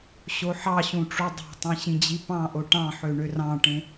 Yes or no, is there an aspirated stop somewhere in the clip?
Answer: no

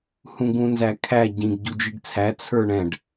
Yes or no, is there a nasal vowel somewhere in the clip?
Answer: yes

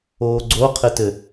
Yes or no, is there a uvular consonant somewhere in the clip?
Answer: yes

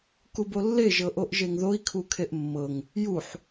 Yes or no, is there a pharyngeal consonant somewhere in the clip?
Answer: yes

